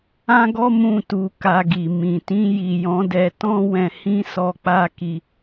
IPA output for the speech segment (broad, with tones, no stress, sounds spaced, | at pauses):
ã˦ ɡ ɔ˦ m ũ˦˨ t u˧ k a˧ ɡ i˨ m ĩ˨ t ĩ˧ j i˨ j ɔ̃˨˦ d ɛ˧ t ɔ̃˦ w ɛ̃˧ h ĩ˦ s ɔ˧ k͡p a˦ k i˧